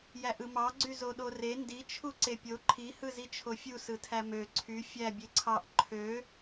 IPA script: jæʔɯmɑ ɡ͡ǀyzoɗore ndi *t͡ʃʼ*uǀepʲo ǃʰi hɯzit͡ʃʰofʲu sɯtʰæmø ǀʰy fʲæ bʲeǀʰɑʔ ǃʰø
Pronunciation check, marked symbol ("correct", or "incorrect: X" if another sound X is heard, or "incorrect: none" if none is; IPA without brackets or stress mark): incorrect: t͡ʃʰ